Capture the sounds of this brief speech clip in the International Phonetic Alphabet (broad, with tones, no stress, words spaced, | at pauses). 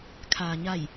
kʰaː˩ɲa˧˩j